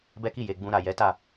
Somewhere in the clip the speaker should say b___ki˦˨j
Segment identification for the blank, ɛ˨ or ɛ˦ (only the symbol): ɛ˦